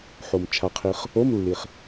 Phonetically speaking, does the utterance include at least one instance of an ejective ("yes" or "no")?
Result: no